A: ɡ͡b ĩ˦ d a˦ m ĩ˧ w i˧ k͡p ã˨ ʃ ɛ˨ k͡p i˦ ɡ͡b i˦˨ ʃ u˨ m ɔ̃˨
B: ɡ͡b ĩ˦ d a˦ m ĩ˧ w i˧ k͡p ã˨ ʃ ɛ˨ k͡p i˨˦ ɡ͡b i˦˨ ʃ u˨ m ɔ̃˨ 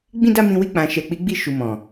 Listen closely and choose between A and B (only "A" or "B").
B